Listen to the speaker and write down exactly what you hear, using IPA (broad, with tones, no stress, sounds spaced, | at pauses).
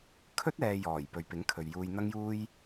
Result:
kʰ ɵ˥ t̚ ɛː˧ j ɔː˨˩ j p ɵ˨ ɥ p ɪ˨˥ ŋ kʰ ɵ˨ ɥ j uː˧ j n̪ ɐ˥ ŋ j uː˥ j